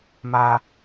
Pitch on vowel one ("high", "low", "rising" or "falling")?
high